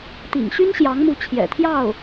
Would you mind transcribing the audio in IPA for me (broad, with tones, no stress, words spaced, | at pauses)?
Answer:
t̪ḭ˨˩ŋɕy˥n ɕjɑ˧˥ŋmu˧˥ t͡ɕʰjɛ̰˨˩t̪ʰjɑ˥˩ʊ̯